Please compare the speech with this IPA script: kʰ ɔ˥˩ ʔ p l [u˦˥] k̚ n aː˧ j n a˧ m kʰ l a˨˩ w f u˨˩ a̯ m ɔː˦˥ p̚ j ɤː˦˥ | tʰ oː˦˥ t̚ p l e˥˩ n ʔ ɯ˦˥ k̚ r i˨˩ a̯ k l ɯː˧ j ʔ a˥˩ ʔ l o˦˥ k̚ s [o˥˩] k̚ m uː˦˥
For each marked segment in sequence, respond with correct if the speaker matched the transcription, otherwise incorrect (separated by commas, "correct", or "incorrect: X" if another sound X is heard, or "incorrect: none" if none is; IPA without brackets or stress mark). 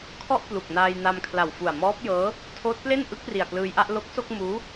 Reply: incorrect: u˨˩, correct